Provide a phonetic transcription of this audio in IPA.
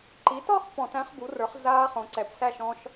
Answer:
ǃ i˩˥ t ɒ˥˧ χ p ɔ̃˧˩˧ t æ̃˦˥ χ b u˩˥ r ə˞˩˥ χ z aː˦˥ χ õ˩˥ ǀ ɛ˩˥ p s æ˥˧ ʃ ɔ̃˦˥ ʃ

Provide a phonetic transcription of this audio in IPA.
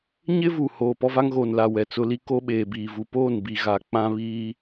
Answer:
ɲ ɪ˦ v u˨ h oː˨ p ɔ˦ v a˦ ŋ ɣ oː˨ n l a˨ w ɛ˨ t͡s ʊ˦ l i˦ k o˦ ɓ eː˨ b iː˨ v u˨ p oː˦˨ n b i˨ ɣ a˨ k͡p ã˦ β iː˦

